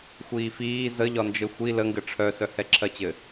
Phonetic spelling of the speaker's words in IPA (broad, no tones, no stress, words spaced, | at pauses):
xʷiːfiː zəʎɒnd͡ʒɘ xʷi ləŋɡɘ ʈ͡ʂʰœ sœhɛǁʰɜt͡ɕɘ